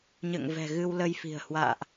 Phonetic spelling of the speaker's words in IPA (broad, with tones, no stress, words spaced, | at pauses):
ɲə̰ː˧˨ŋvɛ̤˨˩ ɣɨ˧wlə˧jfi̤˨˩ə̯ hwa̰ː˧˨ʔ